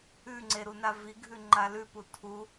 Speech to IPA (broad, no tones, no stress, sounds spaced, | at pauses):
ʉ ŋ͡ǀ e ɾ u n a v i ɡʱ ʉ ŋ͡ǃ a l ʉ p u tʰ u